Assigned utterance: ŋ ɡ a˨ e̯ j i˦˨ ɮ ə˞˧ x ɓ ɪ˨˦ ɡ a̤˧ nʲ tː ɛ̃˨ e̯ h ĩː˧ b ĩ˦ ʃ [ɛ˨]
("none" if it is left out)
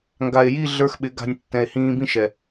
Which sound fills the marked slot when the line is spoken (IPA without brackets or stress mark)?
ɛ˨